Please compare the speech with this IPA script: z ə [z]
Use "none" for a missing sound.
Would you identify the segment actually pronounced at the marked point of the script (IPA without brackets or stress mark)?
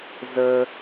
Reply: none